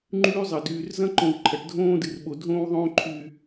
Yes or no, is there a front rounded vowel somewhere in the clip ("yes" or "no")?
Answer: yes